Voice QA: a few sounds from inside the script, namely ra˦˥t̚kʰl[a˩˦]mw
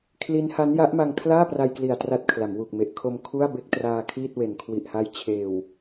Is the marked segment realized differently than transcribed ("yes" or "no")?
no